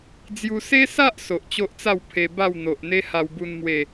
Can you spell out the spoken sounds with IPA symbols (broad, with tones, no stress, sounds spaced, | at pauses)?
d͡z j u˦ s e˦ s a˦ ʔ s o˨ ʔ t͡ɕ o˦ ʔ t͡s a˥˧ w pʰ e˧ b a˥˧ w n̪ o˨ ʔ n̪ e˦ h a˧ w b u˧ n m w e˥˧